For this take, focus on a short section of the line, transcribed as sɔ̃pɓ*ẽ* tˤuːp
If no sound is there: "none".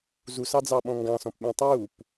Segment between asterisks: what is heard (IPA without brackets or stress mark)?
ẽ